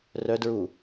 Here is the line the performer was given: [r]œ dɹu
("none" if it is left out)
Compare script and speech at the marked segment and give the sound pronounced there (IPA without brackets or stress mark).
r